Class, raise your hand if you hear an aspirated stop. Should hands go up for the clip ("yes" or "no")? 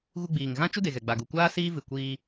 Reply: no